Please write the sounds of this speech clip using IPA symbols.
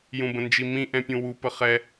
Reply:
jũbə̃nd͡ʒimĩ ʔɛ̃pʲũwu pəχɛ

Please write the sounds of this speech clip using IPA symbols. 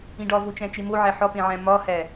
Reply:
ĩɖɒvot͡ʃæ̃ t͡ʃemoʕæ ħɒpẽʕæ̃ mɒhæ

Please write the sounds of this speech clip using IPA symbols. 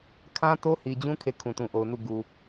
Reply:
kʰã˦to˦hi˨d͡ʑũ˦ kʰe˦˨kʰũ˨tũ˨ʔo˨ʊ̯ nu˦˨ ɡu˨

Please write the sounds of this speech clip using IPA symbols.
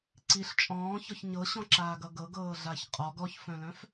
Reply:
ǀiɬ t͡ʃʼɔ̃ːçɔç ɲɤɕɔ̃ǁaːɡʌ ɡɤɡɤːɮaç qʼɔɡ ɔçfœ̃lœ̃f

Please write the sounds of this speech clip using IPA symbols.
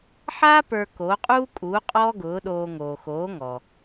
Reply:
ħaː˥ pə˞˧koː˩˥qʼuː˥kʼuː˩˥ qʼɔː˥ɡʊː˩˥ɗoː˧ ŋoː˩xoː˩˥ŋɔ˩

